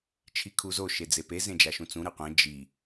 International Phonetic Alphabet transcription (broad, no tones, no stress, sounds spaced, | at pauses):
t͡ʃʰ i kʰ u z o ʃ e d͡z e p e z ẽ d͡ʒ a ʃ ũ t͡s ũ ɾ ɯ qʷ ẽ d͡ʒ i